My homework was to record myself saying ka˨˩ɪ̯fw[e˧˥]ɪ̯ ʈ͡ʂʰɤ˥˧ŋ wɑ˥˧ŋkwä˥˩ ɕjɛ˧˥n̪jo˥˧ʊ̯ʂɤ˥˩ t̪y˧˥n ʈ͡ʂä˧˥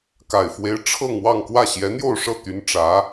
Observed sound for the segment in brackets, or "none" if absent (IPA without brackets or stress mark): e˧˥